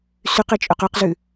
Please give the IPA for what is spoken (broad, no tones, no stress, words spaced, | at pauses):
syqe t͡ʃʼɵqœqzʉ